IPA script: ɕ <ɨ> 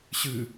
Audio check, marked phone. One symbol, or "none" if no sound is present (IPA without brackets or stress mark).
ɨ